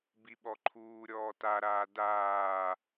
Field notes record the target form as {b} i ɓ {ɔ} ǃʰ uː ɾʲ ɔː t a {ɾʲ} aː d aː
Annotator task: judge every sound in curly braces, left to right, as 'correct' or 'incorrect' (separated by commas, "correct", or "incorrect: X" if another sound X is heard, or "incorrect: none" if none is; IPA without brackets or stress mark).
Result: correct, correct, incorrect: ɾ